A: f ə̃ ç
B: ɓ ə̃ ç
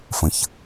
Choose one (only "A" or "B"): A